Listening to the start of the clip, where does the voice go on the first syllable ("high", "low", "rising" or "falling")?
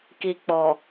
low